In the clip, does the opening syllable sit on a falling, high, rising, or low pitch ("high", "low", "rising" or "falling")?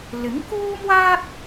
rising